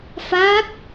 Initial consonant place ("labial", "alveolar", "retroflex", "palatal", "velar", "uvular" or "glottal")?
labial